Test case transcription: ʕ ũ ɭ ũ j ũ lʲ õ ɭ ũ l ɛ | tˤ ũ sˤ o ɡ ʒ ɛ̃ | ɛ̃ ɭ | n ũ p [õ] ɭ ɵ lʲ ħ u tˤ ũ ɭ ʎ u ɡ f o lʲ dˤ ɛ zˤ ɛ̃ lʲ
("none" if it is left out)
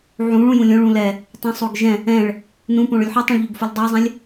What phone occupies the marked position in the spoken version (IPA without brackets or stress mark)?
õ